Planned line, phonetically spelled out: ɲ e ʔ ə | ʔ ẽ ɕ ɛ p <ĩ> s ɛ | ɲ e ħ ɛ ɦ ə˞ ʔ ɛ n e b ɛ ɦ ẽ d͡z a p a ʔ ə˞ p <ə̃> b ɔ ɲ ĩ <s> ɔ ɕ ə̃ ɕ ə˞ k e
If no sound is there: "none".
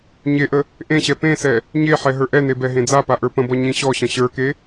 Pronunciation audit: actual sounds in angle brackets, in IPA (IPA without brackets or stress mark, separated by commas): ẽ, ə̃, ɕ